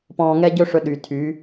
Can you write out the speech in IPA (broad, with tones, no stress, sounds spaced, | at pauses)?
p ɔ̃ː˧ ŋ ɛ˦ ɟ ɵ˦ ʂ ɵ˧ ɗ y˨ tʰ y˨˦